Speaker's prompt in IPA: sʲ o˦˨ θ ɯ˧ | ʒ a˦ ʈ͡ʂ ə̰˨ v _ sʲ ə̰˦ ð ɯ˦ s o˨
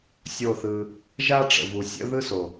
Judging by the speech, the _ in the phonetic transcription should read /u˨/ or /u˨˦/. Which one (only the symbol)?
u˨